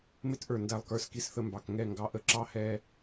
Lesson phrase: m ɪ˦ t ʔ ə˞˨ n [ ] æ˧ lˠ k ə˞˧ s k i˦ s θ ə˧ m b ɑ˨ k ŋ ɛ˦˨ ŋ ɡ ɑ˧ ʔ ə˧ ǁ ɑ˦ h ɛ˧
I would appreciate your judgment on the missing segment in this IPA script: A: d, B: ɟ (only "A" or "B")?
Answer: A